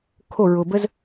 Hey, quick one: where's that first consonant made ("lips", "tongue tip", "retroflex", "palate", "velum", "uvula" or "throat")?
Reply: velum